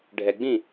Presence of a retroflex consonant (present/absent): present